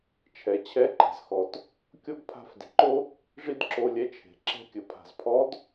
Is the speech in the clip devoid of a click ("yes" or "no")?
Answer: no